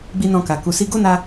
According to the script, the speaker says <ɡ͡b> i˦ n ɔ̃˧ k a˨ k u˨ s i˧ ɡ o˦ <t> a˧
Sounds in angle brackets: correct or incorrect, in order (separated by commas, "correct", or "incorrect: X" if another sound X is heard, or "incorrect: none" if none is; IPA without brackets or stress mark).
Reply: correct, incorrect: n